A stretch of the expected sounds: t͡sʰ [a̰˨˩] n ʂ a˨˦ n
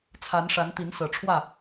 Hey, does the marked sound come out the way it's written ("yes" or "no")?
no